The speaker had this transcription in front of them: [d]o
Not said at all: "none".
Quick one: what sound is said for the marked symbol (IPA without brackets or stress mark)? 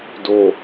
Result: d